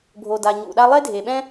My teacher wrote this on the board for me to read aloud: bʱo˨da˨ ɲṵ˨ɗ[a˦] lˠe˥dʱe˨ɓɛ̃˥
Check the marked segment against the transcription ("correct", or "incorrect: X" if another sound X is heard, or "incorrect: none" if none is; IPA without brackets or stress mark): correct